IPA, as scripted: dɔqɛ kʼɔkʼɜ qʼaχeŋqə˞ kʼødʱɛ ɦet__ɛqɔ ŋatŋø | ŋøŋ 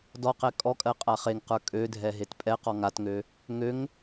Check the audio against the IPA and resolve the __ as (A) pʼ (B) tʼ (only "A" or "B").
A